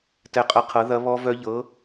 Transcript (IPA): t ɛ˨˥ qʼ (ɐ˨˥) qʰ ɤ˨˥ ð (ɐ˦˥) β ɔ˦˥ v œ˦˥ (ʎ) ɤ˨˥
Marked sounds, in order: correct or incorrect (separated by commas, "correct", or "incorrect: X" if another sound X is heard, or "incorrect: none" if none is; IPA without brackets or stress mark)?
correct, correct, correct